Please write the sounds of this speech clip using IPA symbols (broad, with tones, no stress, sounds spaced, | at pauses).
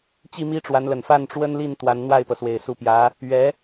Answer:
t͡ɕ i˥˩ m i˥ ʈ͡ʂ w a˧˥ n l ə˨˩ n f a˥˩ n ʈ͡ʂ w ə˥ n l i˥˩ n t̪ w a˧˥ n n̪ w a˥˩ ɪ̯ p ɤ˩ s w e˨˩ ɪ̯ s u˧˥ p j ä˧˥ | ɥ ɛ˧˥